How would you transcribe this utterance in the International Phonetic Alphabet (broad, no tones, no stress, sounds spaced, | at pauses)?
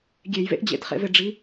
ɡʲ e j v ḛ ʔ d͡ʑ ḛ t χ ḛ v e ɖ͡ʐ i